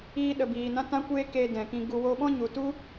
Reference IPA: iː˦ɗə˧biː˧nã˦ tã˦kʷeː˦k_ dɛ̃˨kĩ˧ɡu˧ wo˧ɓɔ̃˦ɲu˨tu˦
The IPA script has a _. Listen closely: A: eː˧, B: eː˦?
A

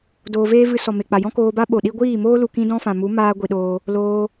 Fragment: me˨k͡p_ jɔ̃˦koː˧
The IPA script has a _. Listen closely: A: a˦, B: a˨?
B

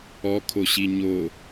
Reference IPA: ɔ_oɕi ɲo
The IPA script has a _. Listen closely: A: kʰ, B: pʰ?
A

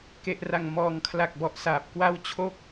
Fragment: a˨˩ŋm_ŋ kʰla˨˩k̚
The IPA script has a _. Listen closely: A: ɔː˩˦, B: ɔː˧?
A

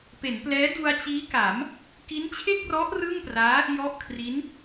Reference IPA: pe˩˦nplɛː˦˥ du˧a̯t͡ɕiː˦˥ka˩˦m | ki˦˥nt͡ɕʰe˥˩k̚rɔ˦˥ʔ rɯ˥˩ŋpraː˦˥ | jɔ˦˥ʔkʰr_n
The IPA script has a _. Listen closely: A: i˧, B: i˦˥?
B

